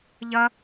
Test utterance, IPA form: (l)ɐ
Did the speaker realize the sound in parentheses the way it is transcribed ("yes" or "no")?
no